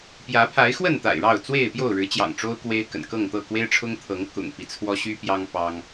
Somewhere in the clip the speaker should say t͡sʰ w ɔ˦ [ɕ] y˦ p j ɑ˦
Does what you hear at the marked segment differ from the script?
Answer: no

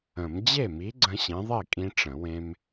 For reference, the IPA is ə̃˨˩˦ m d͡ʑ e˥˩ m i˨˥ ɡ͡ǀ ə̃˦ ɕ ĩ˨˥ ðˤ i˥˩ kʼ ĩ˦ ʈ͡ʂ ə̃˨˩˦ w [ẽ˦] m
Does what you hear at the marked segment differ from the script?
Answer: no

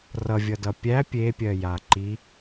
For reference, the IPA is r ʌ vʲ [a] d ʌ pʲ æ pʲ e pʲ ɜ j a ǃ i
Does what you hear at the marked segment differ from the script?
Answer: yes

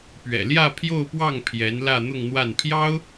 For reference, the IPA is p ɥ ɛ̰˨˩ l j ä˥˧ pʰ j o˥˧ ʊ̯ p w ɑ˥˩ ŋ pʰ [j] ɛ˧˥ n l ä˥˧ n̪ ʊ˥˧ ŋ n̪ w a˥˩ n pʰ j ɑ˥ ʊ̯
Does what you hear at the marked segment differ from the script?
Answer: no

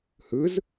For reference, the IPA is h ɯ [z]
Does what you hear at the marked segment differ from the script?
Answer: no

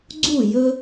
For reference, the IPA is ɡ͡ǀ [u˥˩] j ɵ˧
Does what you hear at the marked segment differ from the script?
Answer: no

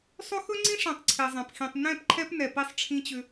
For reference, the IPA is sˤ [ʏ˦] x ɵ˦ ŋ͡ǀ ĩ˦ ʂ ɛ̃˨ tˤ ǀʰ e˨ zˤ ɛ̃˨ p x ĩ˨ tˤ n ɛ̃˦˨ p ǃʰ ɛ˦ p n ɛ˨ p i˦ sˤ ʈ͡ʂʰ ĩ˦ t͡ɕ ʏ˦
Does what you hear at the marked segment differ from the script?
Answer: no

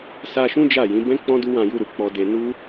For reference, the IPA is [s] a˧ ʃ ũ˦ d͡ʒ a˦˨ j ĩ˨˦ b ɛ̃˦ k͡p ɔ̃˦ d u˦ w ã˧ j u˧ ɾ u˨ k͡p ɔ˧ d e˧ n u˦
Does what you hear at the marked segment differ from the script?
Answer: no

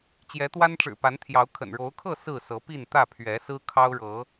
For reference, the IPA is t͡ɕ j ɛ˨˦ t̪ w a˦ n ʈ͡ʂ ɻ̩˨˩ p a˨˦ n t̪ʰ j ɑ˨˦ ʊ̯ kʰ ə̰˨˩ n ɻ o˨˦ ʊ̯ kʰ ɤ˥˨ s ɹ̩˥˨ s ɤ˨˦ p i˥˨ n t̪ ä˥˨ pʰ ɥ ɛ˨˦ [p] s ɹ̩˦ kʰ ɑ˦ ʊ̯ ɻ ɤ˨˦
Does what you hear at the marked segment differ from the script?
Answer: yes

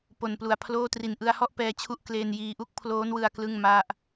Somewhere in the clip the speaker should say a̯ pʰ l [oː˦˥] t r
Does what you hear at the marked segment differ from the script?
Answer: yes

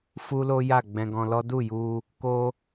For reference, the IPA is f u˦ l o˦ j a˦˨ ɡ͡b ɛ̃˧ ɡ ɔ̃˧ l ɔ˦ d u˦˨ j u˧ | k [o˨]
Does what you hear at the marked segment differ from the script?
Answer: yes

